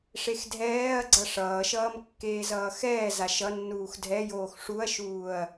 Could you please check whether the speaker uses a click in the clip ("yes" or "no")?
yes